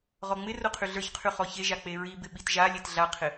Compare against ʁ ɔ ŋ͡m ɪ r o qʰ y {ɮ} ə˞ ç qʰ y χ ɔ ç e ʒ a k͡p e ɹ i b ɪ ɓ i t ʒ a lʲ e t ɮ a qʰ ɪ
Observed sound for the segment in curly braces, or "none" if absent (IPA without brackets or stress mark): ɮ